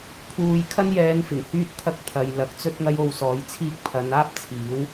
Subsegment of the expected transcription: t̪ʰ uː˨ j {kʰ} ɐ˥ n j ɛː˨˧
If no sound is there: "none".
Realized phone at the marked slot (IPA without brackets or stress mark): kʰ